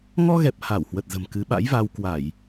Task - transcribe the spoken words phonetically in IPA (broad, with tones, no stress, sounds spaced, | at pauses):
ŋ ɔ˧ ɣ ɛ˨˩ p̚ h a˧˩ w h w ə˨˩ t̚ z ə̤˨˩ m k ɨ˨˦ ɓ a̰˧˥ j v a˧ w k w a˧˩˨ j